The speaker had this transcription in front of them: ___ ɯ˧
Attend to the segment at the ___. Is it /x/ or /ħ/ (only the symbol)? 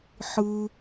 ħ